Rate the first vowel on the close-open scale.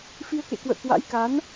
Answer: close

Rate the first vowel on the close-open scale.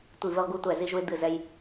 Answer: close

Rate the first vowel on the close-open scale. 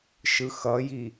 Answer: close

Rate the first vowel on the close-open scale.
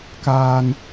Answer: open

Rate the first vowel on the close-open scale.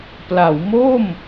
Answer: open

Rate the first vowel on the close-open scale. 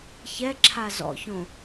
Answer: mid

